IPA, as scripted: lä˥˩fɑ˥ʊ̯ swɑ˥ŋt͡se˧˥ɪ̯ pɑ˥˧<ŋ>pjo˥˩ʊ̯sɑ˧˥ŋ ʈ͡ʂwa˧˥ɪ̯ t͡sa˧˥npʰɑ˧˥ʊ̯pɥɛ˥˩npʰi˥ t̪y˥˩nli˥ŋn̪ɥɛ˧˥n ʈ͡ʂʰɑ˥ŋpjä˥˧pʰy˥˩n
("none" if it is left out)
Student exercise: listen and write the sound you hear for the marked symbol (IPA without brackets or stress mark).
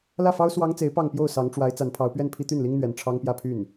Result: ŋ